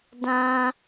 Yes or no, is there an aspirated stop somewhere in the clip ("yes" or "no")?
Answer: no